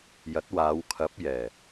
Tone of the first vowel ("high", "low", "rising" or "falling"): rising